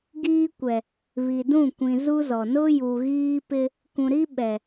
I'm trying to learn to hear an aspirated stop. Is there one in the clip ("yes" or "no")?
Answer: no